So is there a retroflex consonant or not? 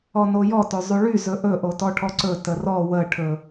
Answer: yes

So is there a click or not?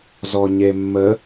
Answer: no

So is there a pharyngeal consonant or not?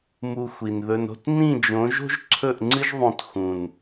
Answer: no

